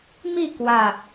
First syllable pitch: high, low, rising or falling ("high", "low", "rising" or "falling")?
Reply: falling